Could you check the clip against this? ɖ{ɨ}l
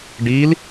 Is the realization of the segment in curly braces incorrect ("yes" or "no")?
yes